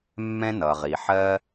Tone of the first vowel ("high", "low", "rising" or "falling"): high